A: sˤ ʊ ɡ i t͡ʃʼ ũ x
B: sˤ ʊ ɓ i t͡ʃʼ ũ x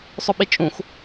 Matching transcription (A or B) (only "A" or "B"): B